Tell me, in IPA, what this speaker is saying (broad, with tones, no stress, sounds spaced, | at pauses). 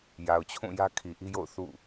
j a˨ ʊ̯ t͡ɕʰ ũ˦˨ j ä˦ kʰ i˨ ʔ i˦ j o̰˦˨ ʊ̯ θ ṵ˦˨